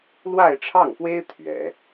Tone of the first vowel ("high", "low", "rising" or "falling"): falling